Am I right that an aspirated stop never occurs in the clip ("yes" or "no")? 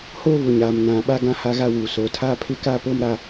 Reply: no